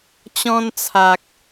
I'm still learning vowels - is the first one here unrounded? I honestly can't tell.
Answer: no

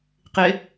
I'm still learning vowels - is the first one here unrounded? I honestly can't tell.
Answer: yes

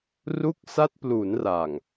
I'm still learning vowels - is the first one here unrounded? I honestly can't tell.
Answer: no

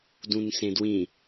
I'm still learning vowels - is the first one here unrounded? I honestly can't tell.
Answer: no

